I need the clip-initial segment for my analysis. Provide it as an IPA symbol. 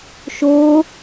ʃ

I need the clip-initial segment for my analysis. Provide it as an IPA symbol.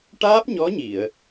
ʈ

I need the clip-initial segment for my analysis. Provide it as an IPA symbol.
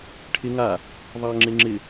ʈʰ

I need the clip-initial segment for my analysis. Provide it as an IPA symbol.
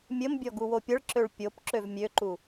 mʲ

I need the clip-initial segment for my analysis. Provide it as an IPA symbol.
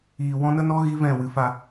iː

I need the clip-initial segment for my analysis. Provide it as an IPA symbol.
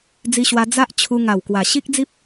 d͡z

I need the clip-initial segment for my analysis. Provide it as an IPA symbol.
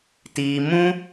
t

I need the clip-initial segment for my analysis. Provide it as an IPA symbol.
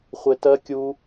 χʷ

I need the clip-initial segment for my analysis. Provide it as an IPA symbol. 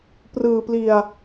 p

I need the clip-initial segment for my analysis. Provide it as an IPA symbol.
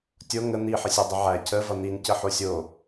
tʲ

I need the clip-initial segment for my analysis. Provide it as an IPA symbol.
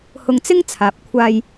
h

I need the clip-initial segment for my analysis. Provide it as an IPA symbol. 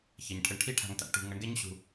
ç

